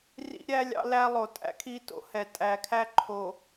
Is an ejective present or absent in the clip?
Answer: present